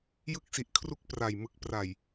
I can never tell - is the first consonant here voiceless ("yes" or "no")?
no